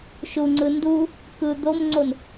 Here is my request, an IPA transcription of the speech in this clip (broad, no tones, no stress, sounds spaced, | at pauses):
ʃ u ŋ͡ǀ ɯ n d u | k ɯ d̪ o m ŋ͡ǀ o n